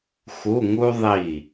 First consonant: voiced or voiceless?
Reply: voiceless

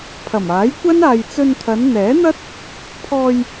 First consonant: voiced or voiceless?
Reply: voiceless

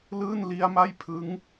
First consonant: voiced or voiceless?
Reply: voiced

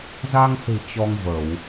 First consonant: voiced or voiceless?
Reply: voiced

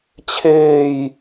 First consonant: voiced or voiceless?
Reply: voiceless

